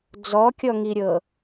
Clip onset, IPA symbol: d͡z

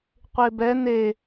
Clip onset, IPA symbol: qʷ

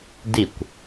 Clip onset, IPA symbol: d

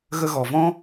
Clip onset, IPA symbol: ɣ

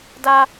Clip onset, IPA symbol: d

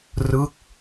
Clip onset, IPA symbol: r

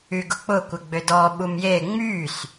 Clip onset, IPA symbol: y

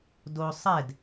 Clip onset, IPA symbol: d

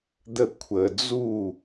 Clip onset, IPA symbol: d̪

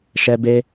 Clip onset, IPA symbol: ʃ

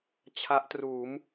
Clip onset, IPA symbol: t͡ɕʰ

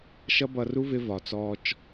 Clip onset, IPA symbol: ʃ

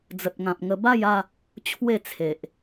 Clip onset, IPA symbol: d͡z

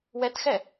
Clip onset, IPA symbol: w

